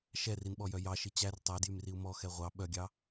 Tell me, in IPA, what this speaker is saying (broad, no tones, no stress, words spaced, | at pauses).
ʃɛrinɓɔjœ jɑʃi t͡ɕær tˤædjymriu̯ mɔxɛ ʁʷɑ ɓœɡʲɑ